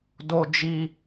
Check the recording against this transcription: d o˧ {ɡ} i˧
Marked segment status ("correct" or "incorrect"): incorrect